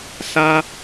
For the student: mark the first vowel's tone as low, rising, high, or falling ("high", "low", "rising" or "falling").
high